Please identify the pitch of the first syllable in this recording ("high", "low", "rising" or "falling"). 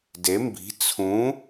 rising